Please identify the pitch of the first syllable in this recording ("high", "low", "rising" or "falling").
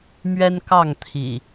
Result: high